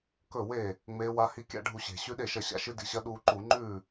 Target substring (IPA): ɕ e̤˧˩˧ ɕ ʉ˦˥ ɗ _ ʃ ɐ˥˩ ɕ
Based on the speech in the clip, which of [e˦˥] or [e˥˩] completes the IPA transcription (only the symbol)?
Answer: e˥˩